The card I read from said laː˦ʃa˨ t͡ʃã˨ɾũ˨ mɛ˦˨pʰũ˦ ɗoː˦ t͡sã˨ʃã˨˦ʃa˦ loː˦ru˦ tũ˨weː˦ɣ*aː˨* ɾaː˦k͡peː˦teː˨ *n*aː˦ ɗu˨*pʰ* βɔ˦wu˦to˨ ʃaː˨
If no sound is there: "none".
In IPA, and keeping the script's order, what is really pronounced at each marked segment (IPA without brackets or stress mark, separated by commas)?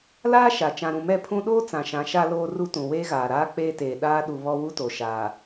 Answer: aː˨, ɗ, none